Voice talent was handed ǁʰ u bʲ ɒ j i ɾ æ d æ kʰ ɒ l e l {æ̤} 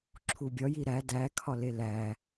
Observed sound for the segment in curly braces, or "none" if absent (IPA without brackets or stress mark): æ